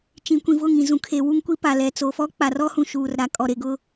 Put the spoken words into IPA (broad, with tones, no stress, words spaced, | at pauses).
t͡ʃĩ˨kʷĩ˨vʊ˦˨ ŋĩ˨ zũ˨kʰe˨ wu˦ŋkʷi˦pa˨ lɛ˨t͡so˨fɔ˦ k͡pa˨rɔ˦hũ˨ ʃuː˨r ɾa˨ kʼɔ˨ɾe˨ ɡʊ˦